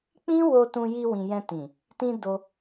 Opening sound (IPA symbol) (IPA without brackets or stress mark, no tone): k͡p